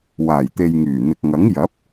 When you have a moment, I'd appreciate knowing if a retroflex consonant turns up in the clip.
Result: no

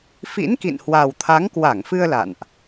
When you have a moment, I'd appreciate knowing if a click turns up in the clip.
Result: no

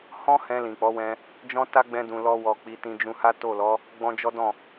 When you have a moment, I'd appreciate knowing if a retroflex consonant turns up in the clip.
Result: no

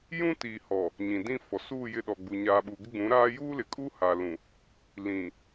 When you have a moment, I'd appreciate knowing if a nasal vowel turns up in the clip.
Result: yes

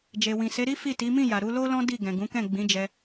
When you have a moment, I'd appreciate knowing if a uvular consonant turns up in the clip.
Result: no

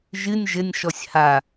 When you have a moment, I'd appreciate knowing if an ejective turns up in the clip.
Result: no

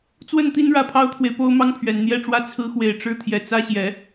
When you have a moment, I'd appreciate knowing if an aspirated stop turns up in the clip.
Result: yes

